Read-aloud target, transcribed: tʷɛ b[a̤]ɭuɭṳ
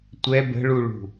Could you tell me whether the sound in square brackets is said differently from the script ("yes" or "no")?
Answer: yes